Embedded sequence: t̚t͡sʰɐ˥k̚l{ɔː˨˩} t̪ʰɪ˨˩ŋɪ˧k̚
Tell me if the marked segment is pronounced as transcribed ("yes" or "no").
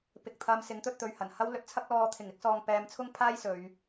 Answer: no